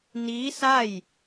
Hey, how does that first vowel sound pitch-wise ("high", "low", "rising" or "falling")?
rising